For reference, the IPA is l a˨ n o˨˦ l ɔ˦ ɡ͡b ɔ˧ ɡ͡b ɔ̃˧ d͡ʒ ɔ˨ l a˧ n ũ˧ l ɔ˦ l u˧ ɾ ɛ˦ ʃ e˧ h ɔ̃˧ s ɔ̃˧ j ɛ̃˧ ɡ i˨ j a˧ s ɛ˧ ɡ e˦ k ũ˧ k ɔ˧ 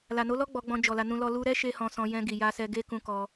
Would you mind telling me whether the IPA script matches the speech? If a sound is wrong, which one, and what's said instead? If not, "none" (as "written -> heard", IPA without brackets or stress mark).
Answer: none